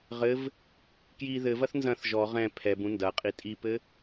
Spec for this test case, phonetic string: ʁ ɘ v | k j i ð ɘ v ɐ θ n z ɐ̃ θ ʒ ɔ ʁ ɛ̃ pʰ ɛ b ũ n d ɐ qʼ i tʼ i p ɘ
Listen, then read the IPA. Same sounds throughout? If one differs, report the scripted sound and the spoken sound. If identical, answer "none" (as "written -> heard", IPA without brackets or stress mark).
none